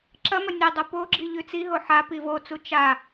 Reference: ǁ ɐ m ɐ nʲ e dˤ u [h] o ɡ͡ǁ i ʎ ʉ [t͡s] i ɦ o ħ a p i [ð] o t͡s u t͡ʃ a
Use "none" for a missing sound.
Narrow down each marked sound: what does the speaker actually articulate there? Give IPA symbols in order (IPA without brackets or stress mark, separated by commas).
p, t͡s, v